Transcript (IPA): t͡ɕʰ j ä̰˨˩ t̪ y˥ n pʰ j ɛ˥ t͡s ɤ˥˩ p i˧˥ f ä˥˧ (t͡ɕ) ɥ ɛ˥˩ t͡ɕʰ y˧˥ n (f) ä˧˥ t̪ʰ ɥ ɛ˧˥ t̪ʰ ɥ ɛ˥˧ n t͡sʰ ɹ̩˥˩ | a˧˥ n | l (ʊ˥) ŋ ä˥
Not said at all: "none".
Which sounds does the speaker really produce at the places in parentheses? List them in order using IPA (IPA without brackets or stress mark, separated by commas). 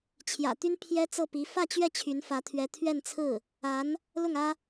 t͡ɕ, f, ʊ˥˩